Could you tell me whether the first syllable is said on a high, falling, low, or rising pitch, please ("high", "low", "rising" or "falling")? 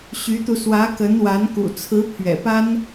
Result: rising